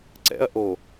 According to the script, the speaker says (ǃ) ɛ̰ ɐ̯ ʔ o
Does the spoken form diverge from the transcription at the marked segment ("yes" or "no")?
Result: yes